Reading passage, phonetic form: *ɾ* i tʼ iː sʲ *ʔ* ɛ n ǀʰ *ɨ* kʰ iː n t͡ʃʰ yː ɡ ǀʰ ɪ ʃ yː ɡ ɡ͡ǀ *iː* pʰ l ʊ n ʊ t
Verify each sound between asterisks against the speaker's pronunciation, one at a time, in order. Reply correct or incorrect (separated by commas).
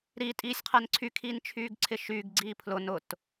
correct, incorrect, incorrect, correct